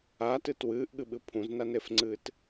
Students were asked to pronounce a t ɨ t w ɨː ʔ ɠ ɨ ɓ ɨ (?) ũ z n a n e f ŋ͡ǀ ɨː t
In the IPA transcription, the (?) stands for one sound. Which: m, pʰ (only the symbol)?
pʰ